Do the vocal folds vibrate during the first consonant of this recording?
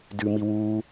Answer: yes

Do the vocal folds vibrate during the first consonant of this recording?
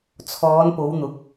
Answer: no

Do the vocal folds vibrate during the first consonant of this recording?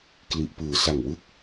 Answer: no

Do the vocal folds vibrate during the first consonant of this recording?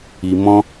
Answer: yes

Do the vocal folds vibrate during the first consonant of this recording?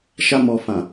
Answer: no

